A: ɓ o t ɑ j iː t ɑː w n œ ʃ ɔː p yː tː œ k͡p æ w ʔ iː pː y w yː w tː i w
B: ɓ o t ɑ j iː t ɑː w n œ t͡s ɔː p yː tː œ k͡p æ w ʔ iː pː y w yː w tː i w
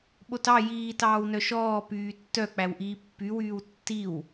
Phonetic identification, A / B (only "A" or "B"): A